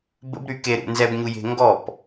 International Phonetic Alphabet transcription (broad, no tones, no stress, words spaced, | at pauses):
bə̰bɾy keɾṵ nzɛbɲuje̤ ŋɡɔp